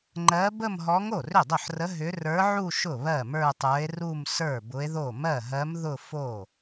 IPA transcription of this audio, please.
ŋ͡ǃ ɜ˧˥ b ə˥˧ m ɦ ɔ˧˥ ŋ o˥˩ r ʏ˥˩ dˤ ʊ˥˩ ħ r ə˧˥ ɦ ʏ˧˥ r ə˞˧˥ ʕ u˥˧ ʃ ʊ˥˩ β ɜ˥˩ m ə˞˥˧ tˤ ə˞˧˥ e̯ r u˥˧ m s ə˞˥˩ b ʊ˧˥ e̯ ð o˥˩ m ɜ˥˩ ɦ ɜ˧˥ m ð ʊ˥˧ f o˥˩

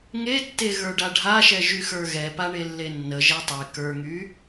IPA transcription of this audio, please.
ŋ e tː e ɣ ə˞ ɖ a ɖʱ a ʃ ɛ ʒ y x ə˞ ɣ ɛ p a ɳ e lː e nː ə ʒ ɛ tˤ e k ə˞ ŋ y

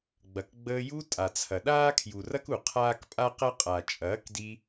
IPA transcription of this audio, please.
ɡ͡b ɐ˨ k ɡ͡b əː˧ j u˧ tʼ a˨ t͡sʰ ɐ˨ ɗ aː˦ kʰ j u˨ r ɐ˦ k u˨ qʰ aː˦ k pʼ a˦ q ɐ˦ qʼ a˨ t͡ʃʼ ɐː˨˦ k d i˧

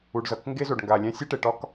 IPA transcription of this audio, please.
u˨ ɖ z ʌ˨ k ŋ ɡ e˦ z o˨ ɖ ŋ ɡ a˨ lʲ æ̃˦ sʲ e˦ ʈ e˨ ʈ ɒ˦ k

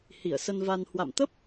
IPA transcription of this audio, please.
h i˧˩ ə̯ s ə˧ n v a˧ n h w a̰˧˨ m t̪ ə˦˥ p̚

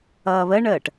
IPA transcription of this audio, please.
ʌː β ə ɳ əː ʈ

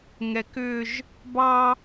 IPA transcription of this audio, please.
ŋ ɛ k ʏ ʒ | b ɑ

